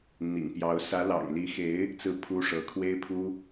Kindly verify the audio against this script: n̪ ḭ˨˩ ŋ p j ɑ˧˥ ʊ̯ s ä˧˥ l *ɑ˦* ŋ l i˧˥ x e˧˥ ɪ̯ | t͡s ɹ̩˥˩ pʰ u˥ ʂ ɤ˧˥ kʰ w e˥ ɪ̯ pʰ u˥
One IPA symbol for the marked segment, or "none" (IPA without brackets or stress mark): ɑ̰˨˩